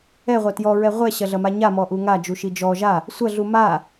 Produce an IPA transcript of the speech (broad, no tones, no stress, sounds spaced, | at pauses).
ɛ ʁʷ ɐ t j ɔ ɹ ɛ ʁʷ ɛ ɕ ɐ ɮ ɐ m a ɲ a m ɔ ʔ u ŋ a d͡ʒ u ʃ i d͡ʒ ɔ ʒ a | sʷ ɐ ɮ u m a